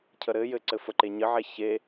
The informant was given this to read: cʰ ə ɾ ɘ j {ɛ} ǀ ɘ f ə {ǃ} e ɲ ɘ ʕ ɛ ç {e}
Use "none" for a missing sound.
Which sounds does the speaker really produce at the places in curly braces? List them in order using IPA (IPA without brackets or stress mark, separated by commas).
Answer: ɘ, ǃ, e